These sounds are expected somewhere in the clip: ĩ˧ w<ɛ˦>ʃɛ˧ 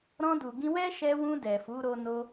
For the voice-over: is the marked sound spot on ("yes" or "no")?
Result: yes